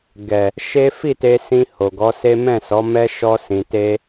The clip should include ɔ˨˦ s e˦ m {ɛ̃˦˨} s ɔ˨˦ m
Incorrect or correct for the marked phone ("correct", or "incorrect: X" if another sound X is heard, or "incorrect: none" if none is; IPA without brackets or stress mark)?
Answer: correct